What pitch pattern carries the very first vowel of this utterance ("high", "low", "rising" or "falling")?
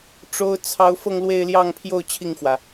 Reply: high